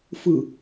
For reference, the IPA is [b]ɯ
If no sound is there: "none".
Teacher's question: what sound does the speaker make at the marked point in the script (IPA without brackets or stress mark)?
f